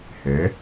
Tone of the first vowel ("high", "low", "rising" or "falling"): rising